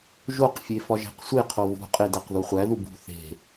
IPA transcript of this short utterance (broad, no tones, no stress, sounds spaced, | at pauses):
ʒ o q fʲ e f ɒ ʒ æ̤ q sʷ e qʰ o v ṳ qʼ e d æ q ð u χʷ æ ð u b ṳ θ e̤